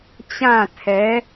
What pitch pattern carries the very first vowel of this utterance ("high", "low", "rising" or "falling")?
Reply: falling